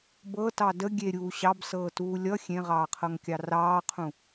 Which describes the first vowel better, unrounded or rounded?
unrounded